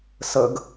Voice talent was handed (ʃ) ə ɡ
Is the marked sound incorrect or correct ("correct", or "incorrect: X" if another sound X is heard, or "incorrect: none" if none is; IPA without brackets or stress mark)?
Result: incorrect: s